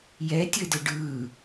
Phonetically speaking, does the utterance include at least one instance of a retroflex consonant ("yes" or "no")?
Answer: yes